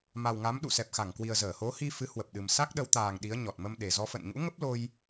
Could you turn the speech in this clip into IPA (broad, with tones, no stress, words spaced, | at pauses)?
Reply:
ma˨˩wŋa˨˦m ɗṵ˧˨sɛ˨˩p̚xa˧˩ŋkwi˨˩ə̯ zəː˧˩ho˨˦hi˧ fɨ˨˦hwə˨˩p̚ɗɨ˨˩m sa˦˥k̚ɗə˨˦wt̪aː˨˩ŋ ɗi˨˦ə̯ɲɔ˨˩t̚ mə˧mɗe˨˩zɔ˧ fə̰˧˨nɲṵ˧˥ŋə˦˥p̚lo˧j